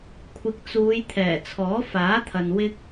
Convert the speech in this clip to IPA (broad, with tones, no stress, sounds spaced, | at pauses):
kʷʰ ɪ˨ k̚ t͡s uː˨˧ j t̪ʰ ɛː˨˩ t͡sʰ ɔː˨˥ f aː˨˥ t̪ʰ ɐ˨ n w ɪ˧ k̚